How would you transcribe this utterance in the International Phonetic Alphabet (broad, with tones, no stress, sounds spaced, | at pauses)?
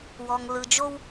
w ɔ˧ ŋ l ɯ˧ d͡ʒ o˥ w